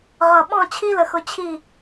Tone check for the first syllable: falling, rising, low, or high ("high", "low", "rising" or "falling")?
low